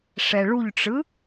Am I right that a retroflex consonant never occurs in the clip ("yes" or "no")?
no